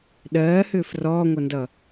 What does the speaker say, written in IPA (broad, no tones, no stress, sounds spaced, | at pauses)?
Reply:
ɗ ɜː h ʏː f r ɔː ŋʷ ʌ n d ʌ